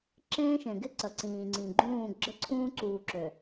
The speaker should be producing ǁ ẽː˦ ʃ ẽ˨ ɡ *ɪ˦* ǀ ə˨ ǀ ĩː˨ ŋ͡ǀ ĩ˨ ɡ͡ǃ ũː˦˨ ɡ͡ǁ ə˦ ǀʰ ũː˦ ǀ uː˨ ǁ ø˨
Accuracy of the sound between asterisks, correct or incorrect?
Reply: correct